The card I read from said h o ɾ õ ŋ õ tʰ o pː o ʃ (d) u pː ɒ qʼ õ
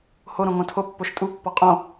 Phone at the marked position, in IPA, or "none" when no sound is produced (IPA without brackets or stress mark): tʼ